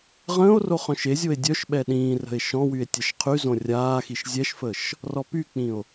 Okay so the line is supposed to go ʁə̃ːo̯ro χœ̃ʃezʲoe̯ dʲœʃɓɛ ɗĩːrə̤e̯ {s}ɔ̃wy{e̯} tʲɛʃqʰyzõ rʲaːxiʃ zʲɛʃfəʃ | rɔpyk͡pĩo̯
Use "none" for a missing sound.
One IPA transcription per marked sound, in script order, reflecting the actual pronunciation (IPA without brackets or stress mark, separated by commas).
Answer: ʃ, e̯